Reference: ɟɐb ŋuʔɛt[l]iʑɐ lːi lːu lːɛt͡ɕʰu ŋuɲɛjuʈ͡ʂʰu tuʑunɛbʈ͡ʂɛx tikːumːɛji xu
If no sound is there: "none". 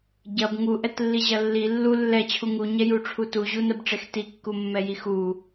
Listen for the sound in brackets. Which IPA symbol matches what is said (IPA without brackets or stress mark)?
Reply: lː